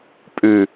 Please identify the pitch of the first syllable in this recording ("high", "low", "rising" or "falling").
low